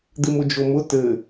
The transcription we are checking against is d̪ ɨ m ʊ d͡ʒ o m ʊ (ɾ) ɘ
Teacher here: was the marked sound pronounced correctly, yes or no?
no